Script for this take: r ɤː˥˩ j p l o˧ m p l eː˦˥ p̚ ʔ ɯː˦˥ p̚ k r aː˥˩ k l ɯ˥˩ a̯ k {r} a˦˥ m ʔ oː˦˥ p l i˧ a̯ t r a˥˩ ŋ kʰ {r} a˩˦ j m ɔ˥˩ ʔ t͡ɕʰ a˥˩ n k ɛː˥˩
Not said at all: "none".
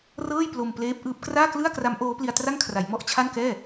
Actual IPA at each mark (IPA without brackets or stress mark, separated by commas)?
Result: r, r